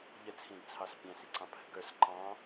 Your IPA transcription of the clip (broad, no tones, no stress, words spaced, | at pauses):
ʎət͡sʰĩdt͡sʰɑs pʲæ̃siǀɑ̃ pʰə̤ɡə˞s ǃɑ̃